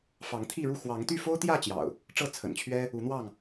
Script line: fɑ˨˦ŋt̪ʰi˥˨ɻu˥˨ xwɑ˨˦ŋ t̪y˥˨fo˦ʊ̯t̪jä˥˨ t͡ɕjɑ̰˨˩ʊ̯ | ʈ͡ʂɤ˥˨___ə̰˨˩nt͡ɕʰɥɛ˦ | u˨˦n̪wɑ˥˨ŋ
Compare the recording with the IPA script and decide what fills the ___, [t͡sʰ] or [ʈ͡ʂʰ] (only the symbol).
t͡sʰ